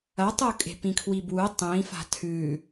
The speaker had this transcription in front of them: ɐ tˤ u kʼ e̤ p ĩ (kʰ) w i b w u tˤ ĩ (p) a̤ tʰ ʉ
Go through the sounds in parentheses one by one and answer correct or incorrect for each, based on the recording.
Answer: correct, incorrect

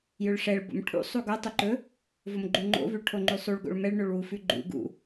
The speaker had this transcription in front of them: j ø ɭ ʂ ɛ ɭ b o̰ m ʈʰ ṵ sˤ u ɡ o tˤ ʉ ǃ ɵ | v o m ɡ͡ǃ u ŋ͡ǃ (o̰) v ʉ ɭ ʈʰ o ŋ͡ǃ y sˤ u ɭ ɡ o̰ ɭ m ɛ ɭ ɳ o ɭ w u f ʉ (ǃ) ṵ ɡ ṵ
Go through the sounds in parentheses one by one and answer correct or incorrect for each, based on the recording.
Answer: correct, incorrect

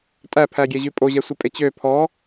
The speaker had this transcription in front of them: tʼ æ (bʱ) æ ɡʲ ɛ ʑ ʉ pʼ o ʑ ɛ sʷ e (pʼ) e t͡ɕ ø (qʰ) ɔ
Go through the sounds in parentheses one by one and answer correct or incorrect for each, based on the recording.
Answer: incorrect, correct, incorrect

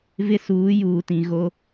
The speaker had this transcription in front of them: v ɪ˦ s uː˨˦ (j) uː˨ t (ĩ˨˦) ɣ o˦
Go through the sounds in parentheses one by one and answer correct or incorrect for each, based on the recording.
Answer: correct, incorrect

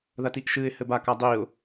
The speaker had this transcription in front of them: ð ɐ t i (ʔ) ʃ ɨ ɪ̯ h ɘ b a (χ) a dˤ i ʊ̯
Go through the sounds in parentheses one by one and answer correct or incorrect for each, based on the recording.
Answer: correct, incorrect

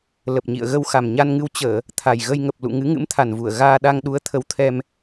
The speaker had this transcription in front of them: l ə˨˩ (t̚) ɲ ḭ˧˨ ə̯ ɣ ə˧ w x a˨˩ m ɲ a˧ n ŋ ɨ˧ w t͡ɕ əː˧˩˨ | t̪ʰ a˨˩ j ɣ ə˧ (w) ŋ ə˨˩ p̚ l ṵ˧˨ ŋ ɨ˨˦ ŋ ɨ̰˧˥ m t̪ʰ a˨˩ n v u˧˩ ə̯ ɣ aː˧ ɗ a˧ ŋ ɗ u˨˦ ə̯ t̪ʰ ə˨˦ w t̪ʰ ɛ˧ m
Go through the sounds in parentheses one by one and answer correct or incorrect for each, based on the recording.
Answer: incorrect, incorrect

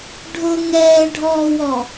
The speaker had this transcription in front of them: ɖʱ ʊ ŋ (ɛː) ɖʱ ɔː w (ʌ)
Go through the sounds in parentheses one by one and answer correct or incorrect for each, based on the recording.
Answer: correct, incorrect

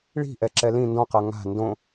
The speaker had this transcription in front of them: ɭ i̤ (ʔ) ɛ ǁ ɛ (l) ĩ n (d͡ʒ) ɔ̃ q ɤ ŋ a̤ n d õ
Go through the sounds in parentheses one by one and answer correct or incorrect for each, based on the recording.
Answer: correct, correct, incorrect

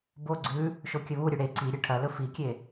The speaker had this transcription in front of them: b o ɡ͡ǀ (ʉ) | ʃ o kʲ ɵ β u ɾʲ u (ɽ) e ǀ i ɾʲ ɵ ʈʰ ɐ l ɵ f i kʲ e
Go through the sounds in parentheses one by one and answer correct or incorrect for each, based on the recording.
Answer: correct, correct

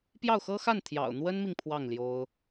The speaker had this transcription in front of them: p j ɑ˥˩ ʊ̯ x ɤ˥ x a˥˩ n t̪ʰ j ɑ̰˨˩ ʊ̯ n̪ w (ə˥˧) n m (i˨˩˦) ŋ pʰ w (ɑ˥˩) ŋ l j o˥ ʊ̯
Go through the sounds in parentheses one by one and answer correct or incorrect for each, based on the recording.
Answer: incorrect, incorrect, correct

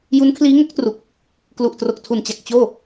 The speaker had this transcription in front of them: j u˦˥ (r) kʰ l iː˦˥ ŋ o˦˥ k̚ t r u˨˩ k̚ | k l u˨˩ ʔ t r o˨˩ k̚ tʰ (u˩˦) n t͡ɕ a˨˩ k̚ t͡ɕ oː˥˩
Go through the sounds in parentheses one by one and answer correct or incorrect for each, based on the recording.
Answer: incorrect, incorrect

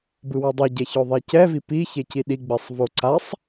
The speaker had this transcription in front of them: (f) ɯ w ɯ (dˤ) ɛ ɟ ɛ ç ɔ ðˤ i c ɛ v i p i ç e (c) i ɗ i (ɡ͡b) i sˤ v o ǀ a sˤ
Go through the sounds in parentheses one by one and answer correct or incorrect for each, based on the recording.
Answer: incorrect, correct, correct, correct

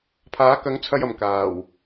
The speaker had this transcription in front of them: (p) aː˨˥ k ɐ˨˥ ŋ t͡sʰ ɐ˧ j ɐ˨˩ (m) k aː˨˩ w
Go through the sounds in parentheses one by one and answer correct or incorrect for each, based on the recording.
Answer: incorrect, correct

